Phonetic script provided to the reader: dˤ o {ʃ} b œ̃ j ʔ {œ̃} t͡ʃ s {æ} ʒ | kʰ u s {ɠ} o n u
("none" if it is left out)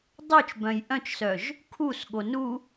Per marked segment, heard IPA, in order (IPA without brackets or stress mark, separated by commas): t͡ʃ, œ̃, œ, ɠ